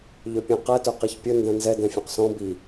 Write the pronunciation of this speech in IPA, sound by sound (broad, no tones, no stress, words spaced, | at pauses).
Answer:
ʎøpʲɛ̃qɛ tœqiçpʲɵ ndɛ̃nzɛ dɛ̃fʲœ̃qsɔ̃ bi